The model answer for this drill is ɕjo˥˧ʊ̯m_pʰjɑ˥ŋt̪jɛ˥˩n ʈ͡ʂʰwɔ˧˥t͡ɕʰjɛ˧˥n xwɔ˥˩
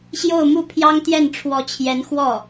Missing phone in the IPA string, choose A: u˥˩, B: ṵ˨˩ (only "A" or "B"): A